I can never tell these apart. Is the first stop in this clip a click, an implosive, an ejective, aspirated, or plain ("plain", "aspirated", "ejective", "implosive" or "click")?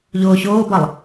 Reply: plain